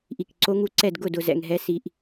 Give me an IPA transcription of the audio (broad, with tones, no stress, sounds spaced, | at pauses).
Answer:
ʔ i˧˩ k ǀ o˦˥ ŋ u˦˥ ǀ ɛ˥˧ d ɡ ʊ˥˧ d ʊ˧ z ɛ̰˧ ŋ ɦ ɛ˦˥ s i˧ ʔ